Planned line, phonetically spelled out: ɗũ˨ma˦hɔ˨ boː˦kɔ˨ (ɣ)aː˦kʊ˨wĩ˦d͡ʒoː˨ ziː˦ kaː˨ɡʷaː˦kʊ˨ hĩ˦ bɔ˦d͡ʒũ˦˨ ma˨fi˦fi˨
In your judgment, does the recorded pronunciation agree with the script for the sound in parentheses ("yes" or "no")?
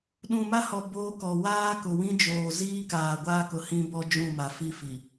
no